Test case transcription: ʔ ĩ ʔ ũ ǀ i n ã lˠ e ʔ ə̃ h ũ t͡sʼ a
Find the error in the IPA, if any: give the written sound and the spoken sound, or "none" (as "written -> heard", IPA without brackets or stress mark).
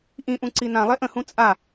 none